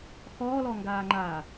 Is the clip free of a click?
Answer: no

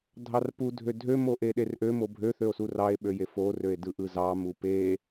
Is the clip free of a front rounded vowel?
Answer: no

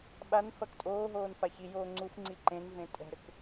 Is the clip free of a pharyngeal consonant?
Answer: yes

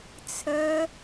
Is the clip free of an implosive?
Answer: yes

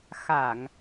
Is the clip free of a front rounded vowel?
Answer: yes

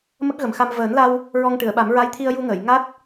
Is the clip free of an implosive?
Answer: no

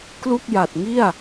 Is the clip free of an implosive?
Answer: yes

